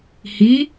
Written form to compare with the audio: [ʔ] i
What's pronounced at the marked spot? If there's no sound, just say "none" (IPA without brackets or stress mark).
h